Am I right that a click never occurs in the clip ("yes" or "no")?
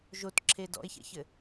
no